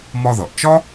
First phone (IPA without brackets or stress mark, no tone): m